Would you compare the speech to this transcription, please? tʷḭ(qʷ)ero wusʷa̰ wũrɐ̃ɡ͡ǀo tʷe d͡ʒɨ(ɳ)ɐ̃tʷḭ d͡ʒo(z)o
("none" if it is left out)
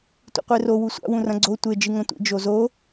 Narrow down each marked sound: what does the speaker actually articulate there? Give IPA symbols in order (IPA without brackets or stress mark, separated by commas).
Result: qʷ, ŋ, z